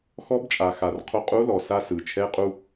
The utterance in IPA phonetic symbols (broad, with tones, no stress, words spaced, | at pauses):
xɔ˧˥bt͡ʃʼa˩xa˩r qʰo˧qʼu˧˥lɔ˩sa˧ sɯ˩t͡ʃʰɛ˧˥qʼu˧